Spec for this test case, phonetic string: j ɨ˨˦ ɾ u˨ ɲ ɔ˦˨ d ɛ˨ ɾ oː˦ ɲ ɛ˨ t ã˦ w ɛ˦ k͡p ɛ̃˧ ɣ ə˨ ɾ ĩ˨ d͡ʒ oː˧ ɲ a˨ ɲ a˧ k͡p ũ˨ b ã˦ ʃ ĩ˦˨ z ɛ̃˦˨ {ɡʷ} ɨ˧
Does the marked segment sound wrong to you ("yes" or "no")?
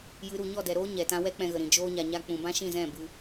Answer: yes